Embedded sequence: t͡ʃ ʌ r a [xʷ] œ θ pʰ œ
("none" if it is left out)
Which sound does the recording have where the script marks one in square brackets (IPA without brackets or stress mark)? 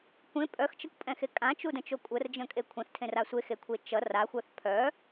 xʷ